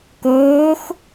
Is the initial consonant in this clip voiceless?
yes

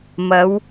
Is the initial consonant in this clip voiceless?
no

